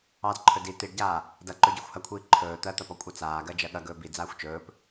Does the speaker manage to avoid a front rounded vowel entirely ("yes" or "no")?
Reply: yes